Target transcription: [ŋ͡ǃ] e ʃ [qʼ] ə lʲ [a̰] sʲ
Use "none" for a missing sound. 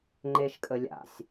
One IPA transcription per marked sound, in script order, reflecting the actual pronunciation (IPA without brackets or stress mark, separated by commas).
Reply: ŋ͡ǃ, kʼ, a̰